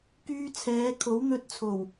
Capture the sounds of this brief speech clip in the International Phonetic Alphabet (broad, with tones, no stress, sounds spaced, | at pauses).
k yː˧ t͡sʰ ɛː˨˧ kʰ o˨˥ w n̪ ɵ˧ t̚ t͡sʰ o˨˩ w